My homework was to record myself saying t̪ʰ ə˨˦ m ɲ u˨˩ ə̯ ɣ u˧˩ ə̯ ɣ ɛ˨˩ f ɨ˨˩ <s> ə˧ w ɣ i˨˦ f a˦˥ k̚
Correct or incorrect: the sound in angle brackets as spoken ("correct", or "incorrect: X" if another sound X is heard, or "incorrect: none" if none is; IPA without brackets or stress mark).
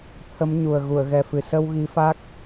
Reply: correct